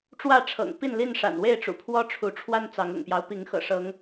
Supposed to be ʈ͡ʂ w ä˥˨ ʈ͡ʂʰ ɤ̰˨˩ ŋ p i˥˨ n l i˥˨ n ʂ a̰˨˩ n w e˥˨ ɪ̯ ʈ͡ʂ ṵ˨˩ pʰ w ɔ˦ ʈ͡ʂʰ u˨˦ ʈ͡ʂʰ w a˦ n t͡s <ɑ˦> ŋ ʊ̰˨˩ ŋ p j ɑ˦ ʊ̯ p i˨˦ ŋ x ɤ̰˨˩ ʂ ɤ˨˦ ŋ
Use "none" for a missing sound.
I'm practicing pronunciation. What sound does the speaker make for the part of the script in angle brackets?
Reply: ɑ˨˦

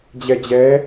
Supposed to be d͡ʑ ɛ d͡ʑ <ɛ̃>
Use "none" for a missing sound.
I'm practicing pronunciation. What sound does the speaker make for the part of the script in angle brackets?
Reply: ɛ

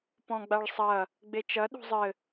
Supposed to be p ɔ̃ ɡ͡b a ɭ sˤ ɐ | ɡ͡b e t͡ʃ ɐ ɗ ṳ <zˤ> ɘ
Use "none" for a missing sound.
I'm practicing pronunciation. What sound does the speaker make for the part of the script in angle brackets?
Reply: zˤ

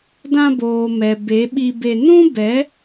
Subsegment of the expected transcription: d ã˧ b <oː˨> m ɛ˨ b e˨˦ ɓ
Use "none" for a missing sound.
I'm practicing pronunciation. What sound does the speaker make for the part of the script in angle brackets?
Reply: oː˨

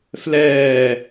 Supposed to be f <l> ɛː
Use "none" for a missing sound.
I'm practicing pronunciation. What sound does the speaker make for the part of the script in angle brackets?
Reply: l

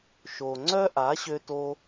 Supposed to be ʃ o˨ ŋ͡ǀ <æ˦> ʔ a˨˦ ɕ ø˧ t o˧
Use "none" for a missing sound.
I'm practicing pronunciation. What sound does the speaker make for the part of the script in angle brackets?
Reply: œ˦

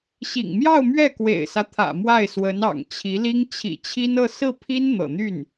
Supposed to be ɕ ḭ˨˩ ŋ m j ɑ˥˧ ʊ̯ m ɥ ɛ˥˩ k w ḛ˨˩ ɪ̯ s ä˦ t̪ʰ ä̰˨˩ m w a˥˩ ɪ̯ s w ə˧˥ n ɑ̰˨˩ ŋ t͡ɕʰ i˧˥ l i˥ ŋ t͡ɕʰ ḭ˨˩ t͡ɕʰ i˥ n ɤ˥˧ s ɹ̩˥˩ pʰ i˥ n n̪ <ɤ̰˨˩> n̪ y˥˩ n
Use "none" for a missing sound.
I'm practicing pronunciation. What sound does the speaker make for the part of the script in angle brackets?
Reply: ɤ̰˨˩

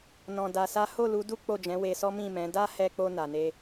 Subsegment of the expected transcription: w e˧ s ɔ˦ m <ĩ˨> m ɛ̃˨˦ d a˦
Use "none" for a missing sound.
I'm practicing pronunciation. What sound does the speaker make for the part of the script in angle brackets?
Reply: ĩ˦˨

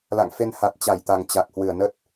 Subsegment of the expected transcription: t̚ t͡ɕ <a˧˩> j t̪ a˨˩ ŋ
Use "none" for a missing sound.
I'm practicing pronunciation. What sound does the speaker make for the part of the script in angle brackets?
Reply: a˧˩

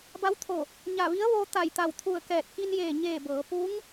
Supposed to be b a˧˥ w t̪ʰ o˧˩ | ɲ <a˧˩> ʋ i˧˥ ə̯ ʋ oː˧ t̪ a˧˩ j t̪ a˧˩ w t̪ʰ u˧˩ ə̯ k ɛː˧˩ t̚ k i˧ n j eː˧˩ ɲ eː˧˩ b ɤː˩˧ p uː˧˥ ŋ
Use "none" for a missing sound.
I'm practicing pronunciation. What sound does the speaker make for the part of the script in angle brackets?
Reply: a˧˩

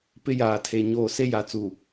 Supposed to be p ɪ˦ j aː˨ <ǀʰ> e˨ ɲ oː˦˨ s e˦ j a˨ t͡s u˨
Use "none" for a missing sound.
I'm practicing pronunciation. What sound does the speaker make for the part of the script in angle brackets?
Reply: tʰ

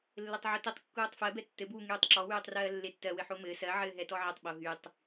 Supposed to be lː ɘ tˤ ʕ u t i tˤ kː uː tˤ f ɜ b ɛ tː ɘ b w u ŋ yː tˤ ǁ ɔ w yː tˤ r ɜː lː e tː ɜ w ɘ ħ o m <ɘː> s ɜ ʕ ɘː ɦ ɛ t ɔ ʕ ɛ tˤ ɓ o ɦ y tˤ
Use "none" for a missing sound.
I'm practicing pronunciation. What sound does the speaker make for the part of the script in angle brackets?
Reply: ɘː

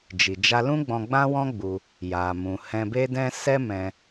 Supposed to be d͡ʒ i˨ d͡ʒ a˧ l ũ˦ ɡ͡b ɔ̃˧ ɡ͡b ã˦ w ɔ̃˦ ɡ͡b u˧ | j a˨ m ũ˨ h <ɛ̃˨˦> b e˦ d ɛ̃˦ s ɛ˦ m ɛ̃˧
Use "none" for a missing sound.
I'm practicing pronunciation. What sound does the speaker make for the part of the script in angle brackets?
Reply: ɛ̃˧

